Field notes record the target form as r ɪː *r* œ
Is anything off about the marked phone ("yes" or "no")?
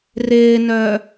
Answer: yes